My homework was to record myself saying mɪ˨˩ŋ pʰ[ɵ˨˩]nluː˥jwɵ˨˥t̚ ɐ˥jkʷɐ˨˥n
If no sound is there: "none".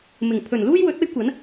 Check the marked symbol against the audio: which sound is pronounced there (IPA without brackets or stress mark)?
ɵ˨˩